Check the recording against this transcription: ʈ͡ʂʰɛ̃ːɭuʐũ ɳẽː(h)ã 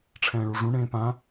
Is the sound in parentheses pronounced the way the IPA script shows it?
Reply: no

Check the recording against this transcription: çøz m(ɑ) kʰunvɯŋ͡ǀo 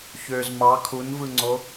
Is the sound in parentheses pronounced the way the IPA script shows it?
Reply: yes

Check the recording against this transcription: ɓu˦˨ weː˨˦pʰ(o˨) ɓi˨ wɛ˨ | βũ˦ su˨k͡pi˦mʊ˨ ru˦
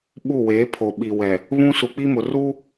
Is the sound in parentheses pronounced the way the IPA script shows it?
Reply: yes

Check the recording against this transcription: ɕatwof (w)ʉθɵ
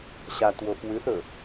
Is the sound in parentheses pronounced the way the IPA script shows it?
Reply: yes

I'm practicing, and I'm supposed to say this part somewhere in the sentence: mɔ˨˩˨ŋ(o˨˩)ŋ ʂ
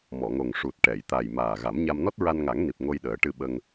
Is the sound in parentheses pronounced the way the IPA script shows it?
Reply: yes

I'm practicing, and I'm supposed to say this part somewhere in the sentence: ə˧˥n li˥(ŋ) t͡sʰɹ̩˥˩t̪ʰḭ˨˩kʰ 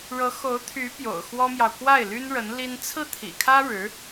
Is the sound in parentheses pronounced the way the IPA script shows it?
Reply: no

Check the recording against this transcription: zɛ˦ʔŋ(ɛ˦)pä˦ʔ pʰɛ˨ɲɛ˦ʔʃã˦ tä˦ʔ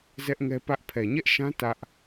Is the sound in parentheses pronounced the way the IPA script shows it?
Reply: yes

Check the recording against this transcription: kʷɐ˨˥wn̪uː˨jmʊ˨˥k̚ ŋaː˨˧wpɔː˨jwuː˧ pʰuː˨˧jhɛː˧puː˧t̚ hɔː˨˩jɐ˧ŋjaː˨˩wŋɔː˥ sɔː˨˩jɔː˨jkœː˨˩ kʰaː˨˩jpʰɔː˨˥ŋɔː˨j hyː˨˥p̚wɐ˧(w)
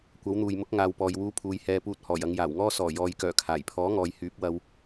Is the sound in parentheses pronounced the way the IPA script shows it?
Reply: yes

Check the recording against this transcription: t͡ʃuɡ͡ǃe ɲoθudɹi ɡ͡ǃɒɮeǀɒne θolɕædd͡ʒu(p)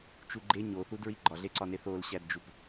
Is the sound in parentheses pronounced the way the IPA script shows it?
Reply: yes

